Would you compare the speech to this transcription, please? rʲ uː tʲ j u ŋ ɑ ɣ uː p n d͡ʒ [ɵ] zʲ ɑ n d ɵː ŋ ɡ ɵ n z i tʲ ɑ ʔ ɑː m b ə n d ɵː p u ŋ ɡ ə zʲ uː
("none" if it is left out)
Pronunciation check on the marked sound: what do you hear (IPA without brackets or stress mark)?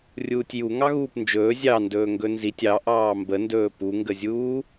ɵː